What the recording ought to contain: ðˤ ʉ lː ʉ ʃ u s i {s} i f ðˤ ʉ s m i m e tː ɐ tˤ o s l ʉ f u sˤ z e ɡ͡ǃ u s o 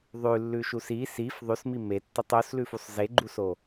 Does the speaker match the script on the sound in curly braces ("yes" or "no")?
yes